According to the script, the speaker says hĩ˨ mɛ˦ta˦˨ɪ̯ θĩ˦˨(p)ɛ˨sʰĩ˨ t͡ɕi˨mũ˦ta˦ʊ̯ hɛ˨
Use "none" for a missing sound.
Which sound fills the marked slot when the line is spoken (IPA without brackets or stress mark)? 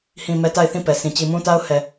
p